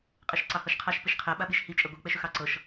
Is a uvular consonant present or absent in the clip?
present